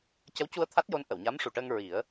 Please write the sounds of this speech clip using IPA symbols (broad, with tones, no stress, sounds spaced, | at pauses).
c ə˧˥ w c u˧ ə̯ t̪ʰ a˦˥ t̚ j o˧˥ n ʔ ə˨˩˨ w ɲ a˧˥ m ʂ u˨˩ ʈ əː˧ ŋ ɹ i˨˩˦ ə̯